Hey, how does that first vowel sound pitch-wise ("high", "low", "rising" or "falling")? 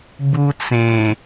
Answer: high